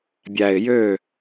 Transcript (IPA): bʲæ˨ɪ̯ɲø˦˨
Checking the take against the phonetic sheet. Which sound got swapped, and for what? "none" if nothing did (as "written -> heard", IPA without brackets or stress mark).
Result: ɲ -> j